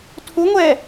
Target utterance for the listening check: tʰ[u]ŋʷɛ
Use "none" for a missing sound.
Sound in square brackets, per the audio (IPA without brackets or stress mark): u